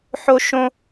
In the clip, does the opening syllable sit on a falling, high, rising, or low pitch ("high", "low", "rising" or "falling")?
high